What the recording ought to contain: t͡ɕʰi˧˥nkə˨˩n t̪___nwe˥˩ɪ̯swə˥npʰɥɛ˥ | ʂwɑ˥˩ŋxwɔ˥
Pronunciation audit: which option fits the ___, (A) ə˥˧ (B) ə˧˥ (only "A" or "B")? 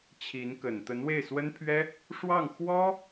B